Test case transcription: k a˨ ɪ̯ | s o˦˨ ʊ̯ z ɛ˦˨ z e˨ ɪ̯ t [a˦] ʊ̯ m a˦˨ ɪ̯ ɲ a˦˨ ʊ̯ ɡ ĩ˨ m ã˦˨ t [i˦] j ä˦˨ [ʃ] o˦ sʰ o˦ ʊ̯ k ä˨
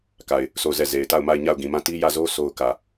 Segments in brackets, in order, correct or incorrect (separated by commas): incorrect, correct, incorrect